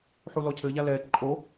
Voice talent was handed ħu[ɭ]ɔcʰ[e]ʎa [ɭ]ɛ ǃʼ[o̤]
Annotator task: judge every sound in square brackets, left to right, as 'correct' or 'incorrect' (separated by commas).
incorrect, incorrect, incorrect, incorrect